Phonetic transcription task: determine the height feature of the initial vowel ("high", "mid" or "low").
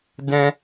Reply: mid